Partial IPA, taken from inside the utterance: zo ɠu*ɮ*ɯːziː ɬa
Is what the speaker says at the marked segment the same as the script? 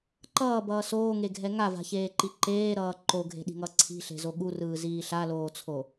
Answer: no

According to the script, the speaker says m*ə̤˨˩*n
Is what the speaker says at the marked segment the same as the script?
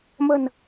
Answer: yes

